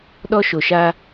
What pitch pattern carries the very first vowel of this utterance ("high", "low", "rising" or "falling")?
high